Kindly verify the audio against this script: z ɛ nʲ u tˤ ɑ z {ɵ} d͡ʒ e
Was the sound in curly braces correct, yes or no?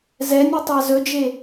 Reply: yes